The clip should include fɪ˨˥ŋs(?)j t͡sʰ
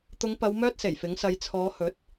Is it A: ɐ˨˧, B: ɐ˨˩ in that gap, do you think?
A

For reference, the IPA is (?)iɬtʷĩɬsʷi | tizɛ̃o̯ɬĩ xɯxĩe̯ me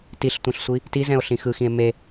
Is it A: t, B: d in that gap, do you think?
A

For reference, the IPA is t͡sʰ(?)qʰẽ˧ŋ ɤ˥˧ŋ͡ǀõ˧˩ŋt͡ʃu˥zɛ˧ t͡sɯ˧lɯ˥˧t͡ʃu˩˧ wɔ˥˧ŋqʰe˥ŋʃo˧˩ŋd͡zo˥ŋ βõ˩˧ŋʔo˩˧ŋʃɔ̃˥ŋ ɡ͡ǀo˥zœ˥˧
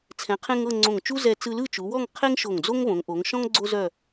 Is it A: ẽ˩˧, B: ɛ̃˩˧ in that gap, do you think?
B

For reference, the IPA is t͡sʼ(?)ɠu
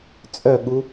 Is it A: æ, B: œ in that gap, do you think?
B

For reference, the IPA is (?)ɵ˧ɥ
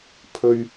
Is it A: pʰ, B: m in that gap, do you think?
A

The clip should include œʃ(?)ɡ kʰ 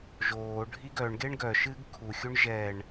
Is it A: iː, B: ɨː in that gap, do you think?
B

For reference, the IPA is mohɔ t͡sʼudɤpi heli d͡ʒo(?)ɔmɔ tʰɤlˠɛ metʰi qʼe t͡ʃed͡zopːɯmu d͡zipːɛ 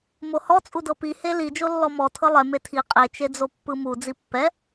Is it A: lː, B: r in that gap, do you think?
A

